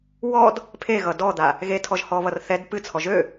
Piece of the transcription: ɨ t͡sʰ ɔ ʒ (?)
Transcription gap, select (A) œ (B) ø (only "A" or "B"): B